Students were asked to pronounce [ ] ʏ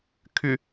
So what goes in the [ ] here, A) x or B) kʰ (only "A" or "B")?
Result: B